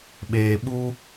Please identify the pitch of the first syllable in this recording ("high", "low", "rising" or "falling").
low